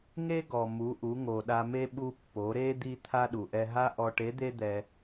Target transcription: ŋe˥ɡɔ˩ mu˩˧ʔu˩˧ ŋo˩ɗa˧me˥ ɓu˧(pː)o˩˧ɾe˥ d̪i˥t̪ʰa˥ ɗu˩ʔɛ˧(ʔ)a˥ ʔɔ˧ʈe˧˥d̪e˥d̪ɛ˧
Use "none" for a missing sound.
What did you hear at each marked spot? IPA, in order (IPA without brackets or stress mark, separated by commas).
pː, ɦ